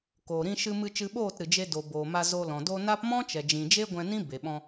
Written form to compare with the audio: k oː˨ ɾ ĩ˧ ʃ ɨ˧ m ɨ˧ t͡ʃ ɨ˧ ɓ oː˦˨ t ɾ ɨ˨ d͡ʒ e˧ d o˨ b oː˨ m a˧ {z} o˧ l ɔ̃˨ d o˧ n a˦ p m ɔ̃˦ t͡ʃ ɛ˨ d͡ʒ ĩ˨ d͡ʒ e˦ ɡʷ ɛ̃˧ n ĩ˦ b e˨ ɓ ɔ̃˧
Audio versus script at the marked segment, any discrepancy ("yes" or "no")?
no